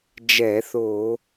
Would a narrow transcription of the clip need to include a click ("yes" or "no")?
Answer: no